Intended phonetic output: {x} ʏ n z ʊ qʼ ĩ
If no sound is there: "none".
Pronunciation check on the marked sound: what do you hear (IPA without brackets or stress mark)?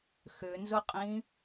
x